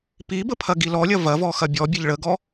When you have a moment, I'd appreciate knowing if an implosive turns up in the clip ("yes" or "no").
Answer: no